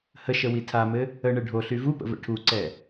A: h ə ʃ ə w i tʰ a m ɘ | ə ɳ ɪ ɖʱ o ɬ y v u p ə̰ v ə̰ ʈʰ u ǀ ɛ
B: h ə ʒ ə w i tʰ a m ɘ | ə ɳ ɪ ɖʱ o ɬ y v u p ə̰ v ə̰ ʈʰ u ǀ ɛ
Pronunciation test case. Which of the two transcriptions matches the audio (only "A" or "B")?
A